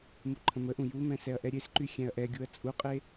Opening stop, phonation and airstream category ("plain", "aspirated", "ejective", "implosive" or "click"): click